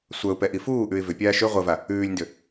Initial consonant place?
alveolar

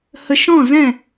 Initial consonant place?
glottal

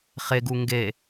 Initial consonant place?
uvular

